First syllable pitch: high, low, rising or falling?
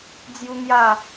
high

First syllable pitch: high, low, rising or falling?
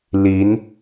rising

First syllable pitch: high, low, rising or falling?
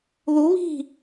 rising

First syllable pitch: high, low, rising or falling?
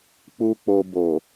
low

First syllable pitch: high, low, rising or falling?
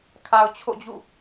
low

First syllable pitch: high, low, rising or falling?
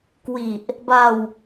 low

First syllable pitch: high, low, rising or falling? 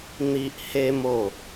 high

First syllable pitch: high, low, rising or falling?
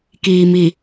low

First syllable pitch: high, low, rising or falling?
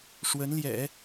rising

